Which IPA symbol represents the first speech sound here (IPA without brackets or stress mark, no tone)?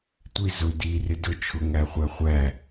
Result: tʷ